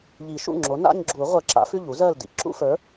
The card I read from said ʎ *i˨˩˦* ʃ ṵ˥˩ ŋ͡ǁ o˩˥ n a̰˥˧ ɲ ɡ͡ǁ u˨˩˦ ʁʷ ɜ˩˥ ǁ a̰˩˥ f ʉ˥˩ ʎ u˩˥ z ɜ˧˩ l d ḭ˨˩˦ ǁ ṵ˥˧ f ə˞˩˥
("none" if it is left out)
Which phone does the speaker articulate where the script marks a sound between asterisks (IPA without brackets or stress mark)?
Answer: i˨˩˦